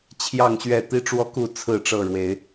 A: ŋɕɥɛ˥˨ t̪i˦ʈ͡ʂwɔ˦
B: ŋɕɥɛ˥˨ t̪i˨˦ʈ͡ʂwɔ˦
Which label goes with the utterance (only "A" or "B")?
A